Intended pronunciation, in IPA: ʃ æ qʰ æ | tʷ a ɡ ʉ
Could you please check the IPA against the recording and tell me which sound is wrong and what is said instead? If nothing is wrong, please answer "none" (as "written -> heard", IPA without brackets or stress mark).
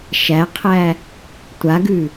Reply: none